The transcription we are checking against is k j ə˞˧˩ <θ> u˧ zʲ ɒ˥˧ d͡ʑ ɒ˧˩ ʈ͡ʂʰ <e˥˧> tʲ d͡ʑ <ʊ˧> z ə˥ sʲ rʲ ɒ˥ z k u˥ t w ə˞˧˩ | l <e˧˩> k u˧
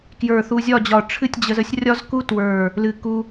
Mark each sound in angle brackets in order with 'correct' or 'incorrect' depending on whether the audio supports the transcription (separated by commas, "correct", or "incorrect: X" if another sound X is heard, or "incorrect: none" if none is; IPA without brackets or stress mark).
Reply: correct, incorrect: ɨ˥˧, incorrect: ə˧, incorrect: ɨ˧˩